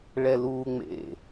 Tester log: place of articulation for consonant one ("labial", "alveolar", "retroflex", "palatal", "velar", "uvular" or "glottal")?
retroflex